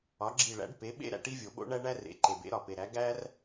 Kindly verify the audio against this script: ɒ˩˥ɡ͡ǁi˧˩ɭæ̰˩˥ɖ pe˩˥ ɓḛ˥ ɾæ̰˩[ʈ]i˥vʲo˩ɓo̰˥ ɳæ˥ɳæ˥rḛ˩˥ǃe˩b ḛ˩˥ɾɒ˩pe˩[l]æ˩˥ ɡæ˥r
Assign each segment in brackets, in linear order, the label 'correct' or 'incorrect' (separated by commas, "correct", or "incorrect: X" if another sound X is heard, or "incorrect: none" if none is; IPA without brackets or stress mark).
correct, incorrect: ɾ